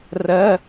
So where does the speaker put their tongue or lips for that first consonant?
tongue tip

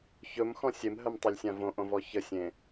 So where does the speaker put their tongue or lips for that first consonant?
palate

